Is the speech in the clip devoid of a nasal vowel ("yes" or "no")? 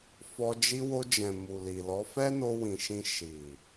no